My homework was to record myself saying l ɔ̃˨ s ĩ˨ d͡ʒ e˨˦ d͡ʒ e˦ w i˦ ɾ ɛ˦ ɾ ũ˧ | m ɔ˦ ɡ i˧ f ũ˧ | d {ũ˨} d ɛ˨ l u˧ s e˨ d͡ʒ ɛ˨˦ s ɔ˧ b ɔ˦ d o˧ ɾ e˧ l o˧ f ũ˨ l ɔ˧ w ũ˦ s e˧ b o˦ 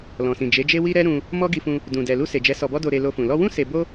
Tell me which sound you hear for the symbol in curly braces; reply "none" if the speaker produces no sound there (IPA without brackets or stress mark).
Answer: ũ˨